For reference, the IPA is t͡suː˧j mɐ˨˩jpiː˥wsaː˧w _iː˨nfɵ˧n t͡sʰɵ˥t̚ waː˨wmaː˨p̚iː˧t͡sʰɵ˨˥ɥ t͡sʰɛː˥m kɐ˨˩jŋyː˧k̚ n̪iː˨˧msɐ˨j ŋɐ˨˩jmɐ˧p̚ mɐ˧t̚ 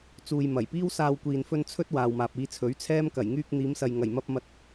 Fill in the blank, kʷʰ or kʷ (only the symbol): kʷ